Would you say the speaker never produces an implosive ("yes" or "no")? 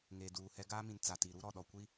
no